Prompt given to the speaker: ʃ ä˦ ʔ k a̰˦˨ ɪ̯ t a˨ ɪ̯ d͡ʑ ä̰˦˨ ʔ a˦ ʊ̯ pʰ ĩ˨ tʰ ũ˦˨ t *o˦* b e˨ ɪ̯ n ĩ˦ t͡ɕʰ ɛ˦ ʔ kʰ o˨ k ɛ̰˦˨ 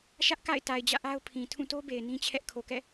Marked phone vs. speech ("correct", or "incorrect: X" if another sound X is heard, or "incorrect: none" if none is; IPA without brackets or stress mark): correct